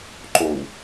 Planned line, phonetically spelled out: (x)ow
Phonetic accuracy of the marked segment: incorrect: ǃ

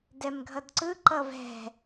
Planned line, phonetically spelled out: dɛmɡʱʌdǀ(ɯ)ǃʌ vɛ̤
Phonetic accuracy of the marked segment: correct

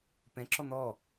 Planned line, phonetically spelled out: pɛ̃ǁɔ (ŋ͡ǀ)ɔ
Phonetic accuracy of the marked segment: incorrect: n̪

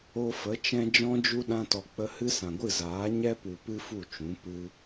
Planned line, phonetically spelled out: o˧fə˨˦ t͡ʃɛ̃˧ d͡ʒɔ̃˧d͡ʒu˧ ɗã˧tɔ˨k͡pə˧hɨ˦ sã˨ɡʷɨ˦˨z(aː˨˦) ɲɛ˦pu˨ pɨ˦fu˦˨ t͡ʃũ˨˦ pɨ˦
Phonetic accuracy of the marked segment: correct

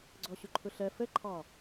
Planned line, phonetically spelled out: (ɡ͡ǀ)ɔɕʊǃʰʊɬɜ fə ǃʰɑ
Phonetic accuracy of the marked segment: correct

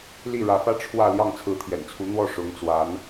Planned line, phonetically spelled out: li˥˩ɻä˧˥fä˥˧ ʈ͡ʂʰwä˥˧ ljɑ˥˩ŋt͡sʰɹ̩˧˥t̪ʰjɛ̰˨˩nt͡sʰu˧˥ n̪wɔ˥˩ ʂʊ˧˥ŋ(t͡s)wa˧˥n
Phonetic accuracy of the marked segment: correct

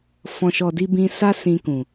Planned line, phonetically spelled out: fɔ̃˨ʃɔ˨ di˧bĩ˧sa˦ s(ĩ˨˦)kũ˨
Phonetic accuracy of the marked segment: incorrect: ĩ˧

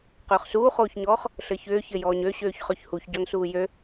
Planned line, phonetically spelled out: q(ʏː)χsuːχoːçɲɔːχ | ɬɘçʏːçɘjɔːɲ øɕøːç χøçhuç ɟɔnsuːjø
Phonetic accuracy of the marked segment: correct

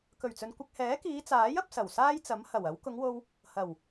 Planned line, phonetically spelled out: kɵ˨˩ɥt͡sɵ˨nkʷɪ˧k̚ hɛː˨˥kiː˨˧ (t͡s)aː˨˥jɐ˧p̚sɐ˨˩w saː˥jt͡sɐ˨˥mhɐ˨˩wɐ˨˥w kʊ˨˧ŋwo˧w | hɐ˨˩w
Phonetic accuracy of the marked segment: correct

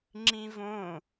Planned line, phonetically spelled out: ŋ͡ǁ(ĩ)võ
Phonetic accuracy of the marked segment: correct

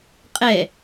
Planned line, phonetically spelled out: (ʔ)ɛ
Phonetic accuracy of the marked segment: incorrect: qʼ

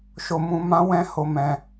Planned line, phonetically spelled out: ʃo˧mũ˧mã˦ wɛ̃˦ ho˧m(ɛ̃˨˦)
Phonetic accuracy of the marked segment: incorrect: ɛ̃˧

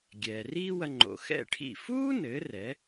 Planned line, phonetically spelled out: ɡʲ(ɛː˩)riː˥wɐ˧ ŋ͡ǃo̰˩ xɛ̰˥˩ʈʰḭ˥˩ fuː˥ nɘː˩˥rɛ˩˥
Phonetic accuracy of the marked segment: correct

